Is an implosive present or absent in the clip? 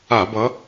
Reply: absent